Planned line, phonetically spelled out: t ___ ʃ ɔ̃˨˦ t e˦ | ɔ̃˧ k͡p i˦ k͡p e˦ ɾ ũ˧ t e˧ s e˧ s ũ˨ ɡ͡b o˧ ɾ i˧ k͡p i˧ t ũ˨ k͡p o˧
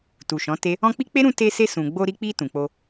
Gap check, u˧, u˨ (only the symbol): u˨